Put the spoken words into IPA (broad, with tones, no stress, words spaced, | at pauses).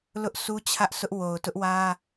lʊ˦ʔsʰu˦t͡ɕʰä˦ʔsʊ˦ʔ wo˨ʊ̯tʊ˦ʔwä˦